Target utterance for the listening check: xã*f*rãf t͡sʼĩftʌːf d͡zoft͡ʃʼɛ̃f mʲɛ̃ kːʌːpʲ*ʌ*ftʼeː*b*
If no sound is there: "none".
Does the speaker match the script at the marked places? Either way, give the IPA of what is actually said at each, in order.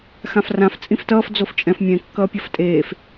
f, ʌ, f

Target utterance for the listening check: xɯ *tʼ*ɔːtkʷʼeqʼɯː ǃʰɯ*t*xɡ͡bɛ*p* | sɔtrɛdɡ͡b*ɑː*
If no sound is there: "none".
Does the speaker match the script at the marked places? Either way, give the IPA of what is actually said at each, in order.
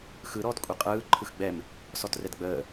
ɾ, none, m, əː

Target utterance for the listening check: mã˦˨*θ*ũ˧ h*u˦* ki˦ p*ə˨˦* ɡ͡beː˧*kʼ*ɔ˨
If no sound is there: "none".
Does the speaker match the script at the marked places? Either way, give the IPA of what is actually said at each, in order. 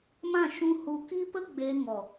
ʃ, u˧, ə˦, ŋ

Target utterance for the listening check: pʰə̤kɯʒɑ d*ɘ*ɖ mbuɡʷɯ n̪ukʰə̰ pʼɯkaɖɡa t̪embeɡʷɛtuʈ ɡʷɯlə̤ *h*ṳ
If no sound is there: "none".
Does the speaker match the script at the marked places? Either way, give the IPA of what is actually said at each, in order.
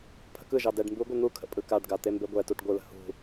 ɛ, h

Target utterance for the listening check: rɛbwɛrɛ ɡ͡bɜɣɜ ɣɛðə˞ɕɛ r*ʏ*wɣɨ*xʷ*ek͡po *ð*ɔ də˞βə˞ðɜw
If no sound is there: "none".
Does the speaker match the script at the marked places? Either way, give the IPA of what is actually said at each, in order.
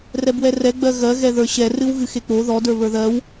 ɨ, x, ð

